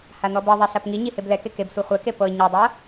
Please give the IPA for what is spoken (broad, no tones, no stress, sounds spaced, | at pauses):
h a n̪ ɔ b ɤ ðˤ ɛ ɬ a p ŋ i ɲ i h e b l ɛ k e k e b sʷ i χʷ ɛ k e p ɤ ɲ ɤ dˤ ɤ